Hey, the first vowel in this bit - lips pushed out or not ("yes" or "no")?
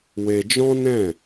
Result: no